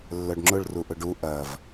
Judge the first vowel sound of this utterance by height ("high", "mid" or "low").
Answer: mid